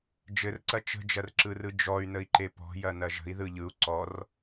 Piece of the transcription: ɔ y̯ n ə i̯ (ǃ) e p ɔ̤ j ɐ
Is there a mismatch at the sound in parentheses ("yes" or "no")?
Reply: no